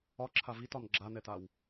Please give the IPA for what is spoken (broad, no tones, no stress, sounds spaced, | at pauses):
ɒ ǁʰ a v i t ɒ n ɡ͡ǁ a n ɛ t a w